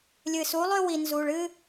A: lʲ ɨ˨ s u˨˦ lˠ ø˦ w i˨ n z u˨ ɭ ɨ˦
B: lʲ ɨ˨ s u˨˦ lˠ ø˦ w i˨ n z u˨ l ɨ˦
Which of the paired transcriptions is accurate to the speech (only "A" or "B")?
A